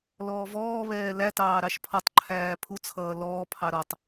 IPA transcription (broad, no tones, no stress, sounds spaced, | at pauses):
l ɔː v ɔː β ɛː l æ t ɑː ɾ ɑ ʃ pʰ ɔ tˤ ǃʰ æː pʰ u t͡sʰ ʌː l ɔː pʰ ɑ ɾ ɔ tˤ